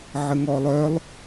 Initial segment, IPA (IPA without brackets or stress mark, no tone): ʕ